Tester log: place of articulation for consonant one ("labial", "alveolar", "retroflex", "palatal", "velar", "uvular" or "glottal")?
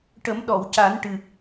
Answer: retroflex